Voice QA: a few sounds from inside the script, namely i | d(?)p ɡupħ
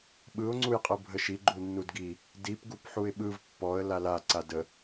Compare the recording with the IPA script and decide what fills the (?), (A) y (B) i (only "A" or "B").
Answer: B